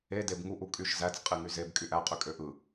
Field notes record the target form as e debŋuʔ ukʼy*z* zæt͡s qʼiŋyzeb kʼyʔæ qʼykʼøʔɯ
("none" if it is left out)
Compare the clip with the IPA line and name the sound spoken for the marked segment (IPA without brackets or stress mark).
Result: ʃ